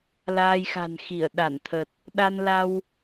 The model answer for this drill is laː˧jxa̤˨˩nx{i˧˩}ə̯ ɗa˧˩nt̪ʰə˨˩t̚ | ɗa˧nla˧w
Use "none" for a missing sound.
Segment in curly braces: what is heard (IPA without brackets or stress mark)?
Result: i˧˩